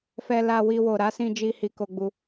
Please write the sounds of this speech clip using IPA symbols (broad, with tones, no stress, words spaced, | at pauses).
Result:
fɛ˧la˧ wi˧wo˨ ɾa˨˦sĩ˧d͡ʒi˧ hi˧ko˧ɡ͡bu˧